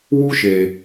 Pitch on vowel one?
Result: high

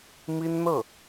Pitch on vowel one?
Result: high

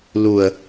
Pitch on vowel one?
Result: low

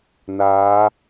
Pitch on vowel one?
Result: rising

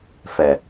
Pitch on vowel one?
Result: low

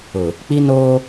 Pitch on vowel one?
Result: low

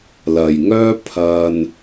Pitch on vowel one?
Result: low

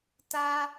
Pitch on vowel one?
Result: high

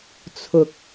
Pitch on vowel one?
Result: low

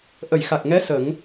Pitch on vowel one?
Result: low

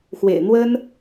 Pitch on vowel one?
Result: low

